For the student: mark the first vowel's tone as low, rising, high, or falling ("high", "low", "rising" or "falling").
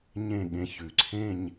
falling